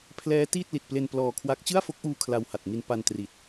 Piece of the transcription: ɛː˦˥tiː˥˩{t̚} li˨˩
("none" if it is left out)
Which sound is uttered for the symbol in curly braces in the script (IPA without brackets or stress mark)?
t̚